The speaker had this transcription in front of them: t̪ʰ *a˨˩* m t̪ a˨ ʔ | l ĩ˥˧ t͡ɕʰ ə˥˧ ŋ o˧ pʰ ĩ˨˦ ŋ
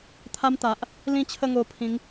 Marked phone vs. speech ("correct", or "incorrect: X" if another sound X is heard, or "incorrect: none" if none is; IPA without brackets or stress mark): incorrect: a˦